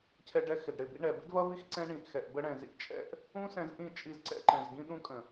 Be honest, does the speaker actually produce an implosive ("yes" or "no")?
yes